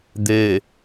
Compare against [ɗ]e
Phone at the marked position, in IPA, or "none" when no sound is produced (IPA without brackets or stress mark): d̪